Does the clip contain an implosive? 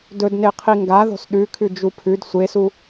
yes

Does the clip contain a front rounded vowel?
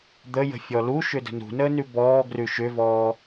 yes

